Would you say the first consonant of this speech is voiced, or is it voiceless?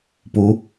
voiceless